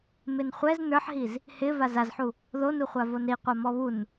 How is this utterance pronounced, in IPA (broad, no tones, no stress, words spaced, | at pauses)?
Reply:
mɪnχʷɛz nə˞ħɦiz | hɪ vazazħu | ðonuχʷa vonɾiqʷa mɔβun